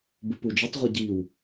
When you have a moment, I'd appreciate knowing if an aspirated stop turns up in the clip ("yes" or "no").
no